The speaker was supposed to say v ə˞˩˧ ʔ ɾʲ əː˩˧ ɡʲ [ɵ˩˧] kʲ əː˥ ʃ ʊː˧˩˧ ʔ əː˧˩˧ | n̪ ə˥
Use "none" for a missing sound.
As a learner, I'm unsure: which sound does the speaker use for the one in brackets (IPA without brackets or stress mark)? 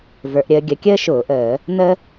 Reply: ə˩˧